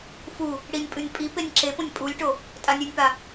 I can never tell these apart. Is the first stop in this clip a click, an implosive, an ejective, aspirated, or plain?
ejective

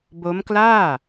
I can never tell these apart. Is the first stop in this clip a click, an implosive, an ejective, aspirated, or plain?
plain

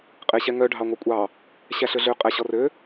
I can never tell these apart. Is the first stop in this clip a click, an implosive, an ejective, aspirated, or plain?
ejective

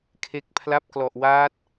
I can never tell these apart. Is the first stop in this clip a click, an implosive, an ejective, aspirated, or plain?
aspirated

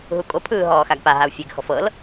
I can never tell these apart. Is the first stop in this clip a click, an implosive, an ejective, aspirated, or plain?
ejective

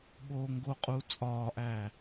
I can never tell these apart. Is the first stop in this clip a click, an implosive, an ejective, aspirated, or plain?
implosive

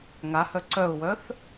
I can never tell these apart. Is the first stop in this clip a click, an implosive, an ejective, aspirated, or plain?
click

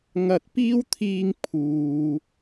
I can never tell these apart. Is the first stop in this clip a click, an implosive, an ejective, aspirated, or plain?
plain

